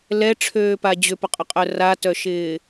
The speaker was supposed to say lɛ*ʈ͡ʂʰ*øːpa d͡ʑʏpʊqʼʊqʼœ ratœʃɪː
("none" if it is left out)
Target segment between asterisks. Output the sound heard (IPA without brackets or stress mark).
ʈ͡ʂʰ